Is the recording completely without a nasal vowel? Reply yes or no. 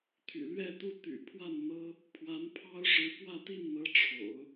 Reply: yes